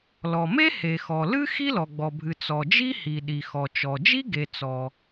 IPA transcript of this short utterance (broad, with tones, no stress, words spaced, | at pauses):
lɔ˩me˥ he˩xɔ˩lɨ˥ xi˥lɔ˩ɡ͡bɔ˩bʱɨ˩ t͡sɔ˩d͡ʒi˥hi˩ ɗi˩xɔ˩ t͡ʃɔ˩ d͡ʒi˥ɡe˩ t͡sɔ˩